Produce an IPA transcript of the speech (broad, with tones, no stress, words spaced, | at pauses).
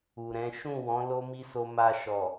u˨ɾɛ̃˨˦ ʃũ˦˨wɔ̃˨˦ lo˦mi˦so˧ ma˧ʃɔ˨